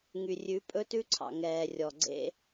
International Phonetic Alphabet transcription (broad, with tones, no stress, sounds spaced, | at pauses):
ŋ y˨ rʲ ʉ˨˦ pʼ ɵ˦ t ʉ˦ ǀʰ ɑ̰˨ ŋ ɛː˨ rʲ ɔ˨ ɡ͡ǀ ḛ˦